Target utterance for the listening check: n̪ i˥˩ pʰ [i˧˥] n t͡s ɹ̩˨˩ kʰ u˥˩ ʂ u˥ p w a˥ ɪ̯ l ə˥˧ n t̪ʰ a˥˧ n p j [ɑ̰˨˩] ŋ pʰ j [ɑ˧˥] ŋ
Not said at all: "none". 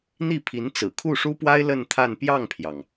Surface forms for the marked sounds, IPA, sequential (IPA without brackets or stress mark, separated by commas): i˧˥, ɑ˥˩, ɑ˩